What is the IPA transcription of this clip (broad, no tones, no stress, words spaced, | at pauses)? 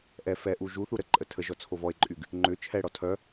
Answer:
ʔɛ fɛʔu ʒuθu ɾəǃʼə tʰəʒɔ t͡sʰovɔe̯ǃʼyɡ | ŋ͡ǃʏ t͡ʃʰɛɽɔ tʰœ